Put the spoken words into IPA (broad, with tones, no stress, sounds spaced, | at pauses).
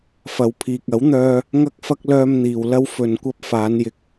f ɐ˨˧ w pʰ iː˨ k̚ ɐ˨˥ w n̪ œː˧ | ŋ ɐ˥ k̚ f ɐ˥ k̚ l œː˧ m n̪ iː˨ w l ɐ˧ w f ɵ˨ n kʷ ɐ˧ p̚ f aː˨˧ n j ɪ˨˥ k̚